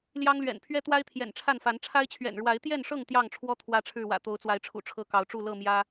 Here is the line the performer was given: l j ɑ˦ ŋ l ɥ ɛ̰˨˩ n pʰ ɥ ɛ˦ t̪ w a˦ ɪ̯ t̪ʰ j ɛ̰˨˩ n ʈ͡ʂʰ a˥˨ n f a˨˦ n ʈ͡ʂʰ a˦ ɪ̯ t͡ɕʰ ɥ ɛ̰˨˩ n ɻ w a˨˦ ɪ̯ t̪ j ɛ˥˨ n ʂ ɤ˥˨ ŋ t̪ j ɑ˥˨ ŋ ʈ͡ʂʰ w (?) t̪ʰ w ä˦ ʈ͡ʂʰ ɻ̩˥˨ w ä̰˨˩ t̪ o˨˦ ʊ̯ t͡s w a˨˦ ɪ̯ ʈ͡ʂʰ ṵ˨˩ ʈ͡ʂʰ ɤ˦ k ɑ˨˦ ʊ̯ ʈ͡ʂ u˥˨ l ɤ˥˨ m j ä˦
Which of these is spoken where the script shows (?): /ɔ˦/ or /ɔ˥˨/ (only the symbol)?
ɔ˦